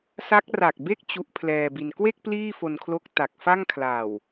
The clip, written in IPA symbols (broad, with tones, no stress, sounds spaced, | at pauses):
s a˦˥ k̚ r a˨˩ k̚ b e˥˩ k̚ t͡ɕ u˦˥ ʔ pʰ l ɛː˧ b i˧ n k w e˥˩ k̚ p l iː˥˩ f o˧ n kʰ l o˦˥ k̚ t a˨˩ k̚ f a˥˩ ŋ kʰ l a˨˩ w